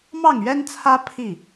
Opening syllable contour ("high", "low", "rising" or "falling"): falling